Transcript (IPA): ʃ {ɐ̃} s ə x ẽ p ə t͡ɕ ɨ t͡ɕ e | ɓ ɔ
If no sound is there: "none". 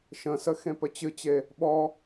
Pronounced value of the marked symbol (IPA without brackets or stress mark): ə̃